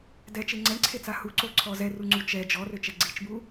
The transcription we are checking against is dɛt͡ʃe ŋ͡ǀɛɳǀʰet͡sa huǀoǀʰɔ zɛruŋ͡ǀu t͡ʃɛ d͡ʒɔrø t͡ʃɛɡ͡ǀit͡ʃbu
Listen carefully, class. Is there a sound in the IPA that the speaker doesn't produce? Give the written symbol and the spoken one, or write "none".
none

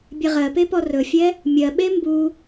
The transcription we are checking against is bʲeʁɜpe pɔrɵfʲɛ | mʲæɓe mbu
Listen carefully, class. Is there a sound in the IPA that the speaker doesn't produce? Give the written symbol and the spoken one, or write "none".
æ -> ɜ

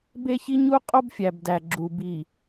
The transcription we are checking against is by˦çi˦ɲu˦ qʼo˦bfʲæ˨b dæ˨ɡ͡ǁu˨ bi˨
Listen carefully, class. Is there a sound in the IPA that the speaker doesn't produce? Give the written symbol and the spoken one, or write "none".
y˦ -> e˦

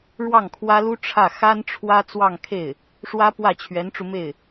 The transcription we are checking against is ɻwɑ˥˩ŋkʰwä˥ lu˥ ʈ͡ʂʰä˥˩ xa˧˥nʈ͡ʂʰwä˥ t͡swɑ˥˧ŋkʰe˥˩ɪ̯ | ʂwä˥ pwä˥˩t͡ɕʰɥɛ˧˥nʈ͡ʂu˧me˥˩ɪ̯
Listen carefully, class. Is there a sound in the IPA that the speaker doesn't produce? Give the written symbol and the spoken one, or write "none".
a˧˥ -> a˥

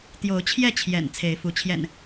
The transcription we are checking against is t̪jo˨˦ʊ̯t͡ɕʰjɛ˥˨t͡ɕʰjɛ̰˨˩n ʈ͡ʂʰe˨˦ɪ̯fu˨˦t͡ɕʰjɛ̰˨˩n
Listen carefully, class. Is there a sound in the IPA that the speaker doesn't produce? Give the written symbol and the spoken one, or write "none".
ʈ͡ʂʰ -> t͡sʰ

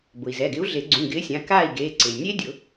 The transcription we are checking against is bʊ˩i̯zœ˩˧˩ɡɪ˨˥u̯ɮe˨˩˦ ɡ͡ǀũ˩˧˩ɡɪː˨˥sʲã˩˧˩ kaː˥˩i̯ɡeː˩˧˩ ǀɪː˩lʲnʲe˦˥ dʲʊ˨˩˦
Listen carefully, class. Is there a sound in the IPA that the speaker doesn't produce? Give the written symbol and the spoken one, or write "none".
œ˩˧˩ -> ɛ˩˧˩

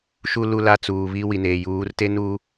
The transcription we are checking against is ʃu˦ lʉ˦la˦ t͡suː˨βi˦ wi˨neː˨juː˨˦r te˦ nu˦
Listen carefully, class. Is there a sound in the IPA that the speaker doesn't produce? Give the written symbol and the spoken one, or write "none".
ʉ˦ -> u˦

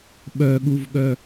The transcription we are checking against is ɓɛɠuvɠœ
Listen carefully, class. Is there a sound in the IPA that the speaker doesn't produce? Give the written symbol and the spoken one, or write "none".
ɛ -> œ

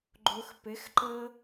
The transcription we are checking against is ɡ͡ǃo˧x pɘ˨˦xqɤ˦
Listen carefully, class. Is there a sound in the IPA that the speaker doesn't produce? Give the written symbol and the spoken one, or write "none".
q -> ǃ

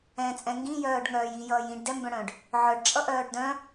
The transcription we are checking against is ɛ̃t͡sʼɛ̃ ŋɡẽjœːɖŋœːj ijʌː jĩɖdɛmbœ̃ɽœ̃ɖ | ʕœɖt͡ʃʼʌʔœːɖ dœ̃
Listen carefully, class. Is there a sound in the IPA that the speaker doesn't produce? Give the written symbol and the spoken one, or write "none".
ẽ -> ĩ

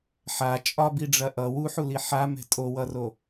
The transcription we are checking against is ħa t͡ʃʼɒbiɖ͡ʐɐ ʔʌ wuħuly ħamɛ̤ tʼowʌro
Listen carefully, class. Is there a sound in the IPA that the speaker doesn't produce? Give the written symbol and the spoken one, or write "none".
y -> i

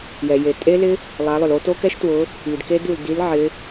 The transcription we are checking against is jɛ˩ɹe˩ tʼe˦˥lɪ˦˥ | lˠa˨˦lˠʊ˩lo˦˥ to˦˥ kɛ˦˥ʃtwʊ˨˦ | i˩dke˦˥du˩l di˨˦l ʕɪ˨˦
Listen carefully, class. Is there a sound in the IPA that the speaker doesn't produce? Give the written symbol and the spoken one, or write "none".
ɹ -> j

